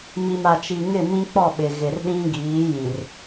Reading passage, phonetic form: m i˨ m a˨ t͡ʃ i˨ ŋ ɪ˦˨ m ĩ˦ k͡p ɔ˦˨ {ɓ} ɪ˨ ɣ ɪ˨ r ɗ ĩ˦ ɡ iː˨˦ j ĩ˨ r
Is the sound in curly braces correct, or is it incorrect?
correct